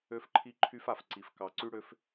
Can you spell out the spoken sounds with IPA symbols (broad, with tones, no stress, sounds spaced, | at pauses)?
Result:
ø˦ f ǃʰ i˦ ǃʰ y˦ f a˨ f ǀ i˨ f k ɑ˨ ǀ y˦ ɽ ø˦ f